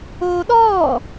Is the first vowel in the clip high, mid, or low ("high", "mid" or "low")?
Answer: mid